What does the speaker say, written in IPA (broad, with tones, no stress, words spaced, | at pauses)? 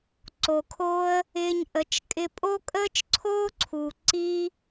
ǀo˨kʰoː˦ə̯ | ɪː˧ɲʔə˨˦t͡ʃkʼɪ˧ pʼo˦kʼəː˦t͡ʃǀʰoː˦ǀʰuː˨ ǀi˦